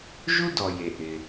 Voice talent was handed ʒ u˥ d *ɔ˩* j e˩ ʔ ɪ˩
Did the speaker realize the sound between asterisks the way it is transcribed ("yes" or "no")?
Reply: yes